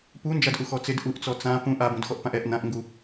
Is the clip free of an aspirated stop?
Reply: yes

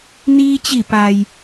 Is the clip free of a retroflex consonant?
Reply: yes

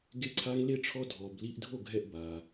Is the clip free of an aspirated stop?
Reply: no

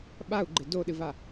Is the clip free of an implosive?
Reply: no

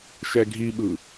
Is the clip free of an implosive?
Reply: no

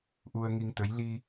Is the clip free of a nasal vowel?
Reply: yes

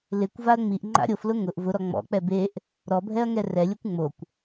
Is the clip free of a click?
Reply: no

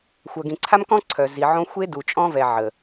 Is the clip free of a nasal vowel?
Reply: no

